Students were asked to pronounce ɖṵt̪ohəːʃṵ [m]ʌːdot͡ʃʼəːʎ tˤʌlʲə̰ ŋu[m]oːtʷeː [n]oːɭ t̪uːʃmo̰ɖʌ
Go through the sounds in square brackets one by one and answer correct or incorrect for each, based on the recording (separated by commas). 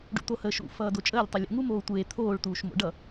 incorrect, correct, incorrect